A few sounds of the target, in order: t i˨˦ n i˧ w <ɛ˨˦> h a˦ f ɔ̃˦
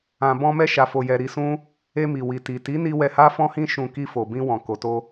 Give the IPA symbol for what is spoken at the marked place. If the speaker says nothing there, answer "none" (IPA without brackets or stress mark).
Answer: ɛ˧